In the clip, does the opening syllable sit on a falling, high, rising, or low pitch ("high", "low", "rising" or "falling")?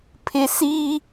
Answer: low